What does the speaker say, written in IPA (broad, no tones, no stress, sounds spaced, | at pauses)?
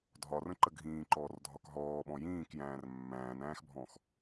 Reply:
dʱ ɒ r ə̃ ǃ ə ɡʱ ĩː ǃ ɔː r dʱ ɒ k ɦ ɔː ɓ ɔ̃ j ĩː k j æ̃ː r mː æ̃ː n æ̃ː x bʱ ɔ̃ x